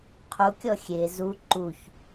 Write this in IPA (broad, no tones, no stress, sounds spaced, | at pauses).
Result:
qʰ u kʲ ɔ xʲ e z u ǃ u ç